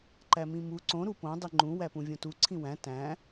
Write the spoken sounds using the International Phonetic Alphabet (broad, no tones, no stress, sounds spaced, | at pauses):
ǃ æ m ĩ m u ǀ õ ɾ u p õ dˤ i ŋ͡ǃ ũ w æ p ũ vʲ õ t u ǀʰ ĩ w æ̃ t æ̃